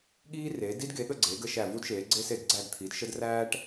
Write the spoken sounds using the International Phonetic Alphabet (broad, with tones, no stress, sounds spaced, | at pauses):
ɠ iː˥ r eː˩˥ d i˥ d ɡ e˩˥ ɠ ə˥˨ ɡ͡ǀ e˩˥ ɡ ə˩˥ ʃ æ˥˨ v u˥ d ʃ eː˩˥ ɡ͡ǀ e˥ s e˥˨ d ɡ͡ǀ æ˥˨ d t̪ʰ i˩˥ d ʃ ə˥ d r æː˥ ʈ